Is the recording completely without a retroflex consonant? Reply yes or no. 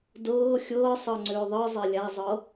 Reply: yes